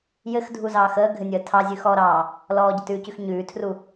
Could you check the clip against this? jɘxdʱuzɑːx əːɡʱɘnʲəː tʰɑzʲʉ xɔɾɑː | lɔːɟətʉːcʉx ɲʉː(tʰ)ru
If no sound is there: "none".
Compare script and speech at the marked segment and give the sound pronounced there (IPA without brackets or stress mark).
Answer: tʰ